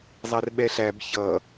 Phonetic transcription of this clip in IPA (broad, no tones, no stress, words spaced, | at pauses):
zˤærɓɛɬæb çʌ